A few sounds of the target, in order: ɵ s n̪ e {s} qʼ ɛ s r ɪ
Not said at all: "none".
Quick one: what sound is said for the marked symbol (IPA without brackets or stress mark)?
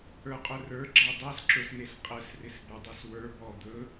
s